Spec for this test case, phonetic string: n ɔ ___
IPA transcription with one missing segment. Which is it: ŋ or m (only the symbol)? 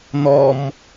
m